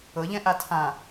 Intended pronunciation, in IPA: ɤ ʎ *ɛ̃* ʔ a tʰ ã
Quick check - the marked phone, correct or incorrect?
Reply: correct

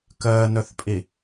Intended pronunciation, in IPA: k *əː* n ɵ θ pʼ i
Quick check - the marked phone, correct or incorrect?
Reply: correct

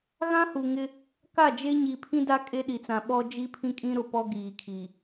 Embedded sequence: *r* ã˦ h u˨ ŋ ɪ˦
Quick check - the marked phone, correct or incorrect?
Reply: incorrect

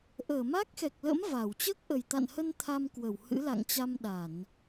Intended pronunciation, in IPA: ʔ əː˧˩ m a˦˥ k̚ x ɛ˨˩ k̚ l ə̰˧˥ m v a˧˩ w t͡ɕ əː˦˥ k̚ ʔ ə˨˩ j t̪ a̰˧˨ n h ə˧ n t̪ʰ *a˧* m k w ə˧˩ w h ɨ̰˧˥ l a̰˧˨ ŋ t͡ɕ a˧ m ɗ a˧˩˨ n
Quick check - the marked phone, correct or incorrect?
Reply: correct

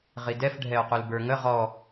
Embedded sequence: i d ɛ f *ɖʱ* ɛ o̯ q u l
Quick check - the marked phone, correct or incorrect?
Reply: correct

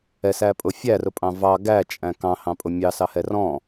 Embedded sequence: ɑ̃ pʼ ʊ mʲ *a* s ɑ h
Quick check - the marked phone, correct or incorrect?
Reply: incorrect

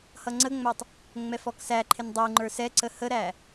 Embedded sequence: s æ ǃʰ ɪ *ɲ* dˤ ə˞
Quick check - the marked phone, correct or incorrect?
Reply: incorrect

